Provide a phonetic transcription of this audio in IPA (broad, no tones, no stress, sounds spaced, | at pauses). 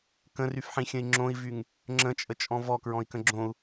k ə̃ r y f ħ ĩ xʲ ə̃ i̯ ŋ͡ǁ õ i̯ v y ŋ | ŋ͡ǁ ə̃ t͡ʃʼ ə t͡ʃʼ ɔ̃ v ɔ k ɹ ɔ̃ i̯ k ə̃ ɡ͡ǁ õ u̯